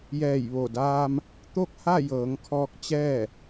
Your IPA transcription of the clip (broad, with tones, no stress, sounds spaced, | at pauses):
j ɛː˧˩ j ʋ o˧˩ d aː˧ m | t̪ o˥˨ k̚ h a˥˨ j ɤː˩˧ ŋ kʰ ɔː˧ k̚ t͡ɕ ɛː˥˨